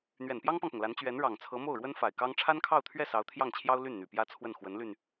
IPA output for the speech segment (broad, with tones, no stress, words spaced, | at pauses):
n̪ɥɛ˨˩npjɑ˥ŋpɑ˨ŋpʊ˩ŋ la˧˥nt͡ɕɥɛ˧˥n ɻɑ˨˩ŋt͡sʰɤ˧˥ mo˥˩ʊ̯ɻwə˥nfa˨˩ɪ̯kɑ˥ŋ ʈ͡ʂʰa˥nkʰɑ˥˧ʊ̯t̪ʰɥɛ˥˩ sɑ˧˥ʊ̯t̪ʰjɑ˥˩ŋt͡ɕʰjɑ˥ʊ̯ ly˥˩nn̪y˨˩ pjä˥t͡sʰwə˥˩n xwə˧˥nly˧n